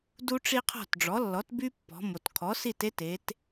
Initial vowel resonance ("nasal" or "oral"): oral